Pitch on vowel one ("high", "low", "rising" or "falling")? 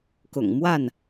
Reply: low